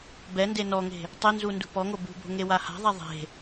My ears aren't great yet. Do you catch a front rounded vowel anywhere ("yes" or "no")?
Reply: no